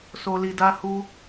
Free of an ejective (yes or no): yes